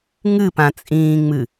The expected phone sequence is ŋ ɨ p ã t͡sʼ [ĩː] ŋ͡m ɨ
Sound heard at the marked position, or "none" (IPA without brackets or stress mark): ĩː